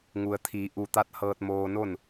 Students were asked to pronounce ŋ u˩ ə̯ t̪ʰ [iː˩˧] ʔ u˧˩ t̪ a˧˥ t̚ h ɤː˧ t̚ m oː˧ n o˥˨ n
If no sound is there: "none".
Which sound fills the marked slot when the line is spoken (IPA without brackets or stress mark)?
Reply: iː˩˧